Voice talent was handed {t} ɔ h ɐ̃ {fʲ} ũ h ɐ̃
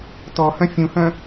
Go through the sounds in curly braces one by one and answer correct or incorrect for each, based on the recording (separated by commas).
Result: correct, correct